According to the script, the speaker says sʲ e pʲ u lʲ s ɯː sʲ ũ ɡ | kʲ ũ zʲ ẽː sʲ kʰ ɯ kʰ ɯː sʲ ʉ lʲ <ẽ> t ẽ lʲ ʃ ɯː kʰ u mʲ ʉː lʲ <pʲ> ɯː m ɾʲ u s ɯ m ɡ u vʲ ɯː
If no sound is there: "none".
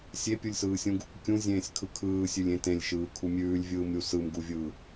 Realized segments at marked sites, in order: ẽ, vʲ

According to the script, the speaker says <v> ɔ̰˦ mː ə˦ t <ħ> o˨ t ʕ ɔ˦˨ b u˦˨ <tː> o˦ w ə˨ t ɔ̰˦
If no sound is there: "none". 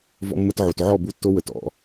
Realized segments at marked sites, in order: v, ʕ, tː

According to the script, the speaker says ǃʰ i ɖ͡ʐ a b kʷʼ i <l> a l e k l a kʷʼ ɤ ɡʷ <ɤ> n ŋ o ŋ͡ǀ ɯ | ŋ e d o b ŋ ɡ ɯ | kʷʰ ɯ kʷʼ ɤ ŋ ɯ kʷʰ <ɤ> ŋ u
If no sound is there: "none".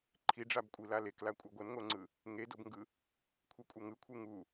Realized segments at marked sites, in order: l, ɤ, ɯ

